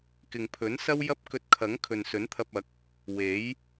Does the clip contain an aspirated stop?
yes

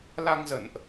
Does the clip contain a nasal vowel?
no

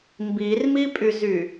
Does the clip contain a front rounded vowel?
yes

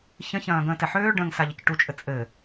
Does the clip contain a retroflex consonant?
yes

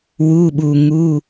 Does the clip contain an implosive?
yes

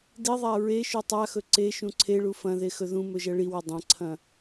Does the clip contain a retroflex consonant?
yes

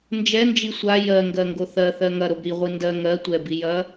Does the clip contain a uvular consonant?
yes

